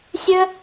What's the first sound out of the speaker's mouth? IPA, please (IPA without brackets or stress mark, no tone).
sʲ